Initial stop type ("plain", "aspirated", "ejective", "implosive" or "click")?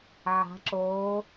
click